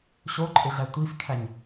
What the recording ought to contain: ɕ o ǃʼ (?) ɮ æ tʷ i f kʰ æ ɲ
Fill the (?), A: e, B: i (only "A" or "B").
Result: A